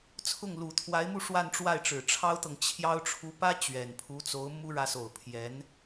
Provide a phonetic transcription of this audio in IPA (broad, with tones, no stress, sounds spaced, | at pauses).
t͡sʰ ʊ˥˩ ŋ l u˨˩ t̪ʰ w a˧˥ ɪ̯ m u˥˧ ʂ w a˥˧ n ʈ͡ʂ w a˥˩ ɪ̯ ʈ͡ʂ ɻ̩˨˩ ʈ͡ʂʰ ɑ˥ ʊ̯ t̪ ɤ˨ ŋ t͡ɕʰ j ɑ˥ ʊ̯ ʈ͡ʂʰ u˧˥ p ä˥ t͡ɕ ɥ ɛ˨˩ n pʰ u˧˥ t͡s o˧˥ ʊ̯ m u˥ ɻ ä˧˥ s o˨˩ ʊ̯ pʰ j ɛ˧˥ n